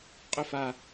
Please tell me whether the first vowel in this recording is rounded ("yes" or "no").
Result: yes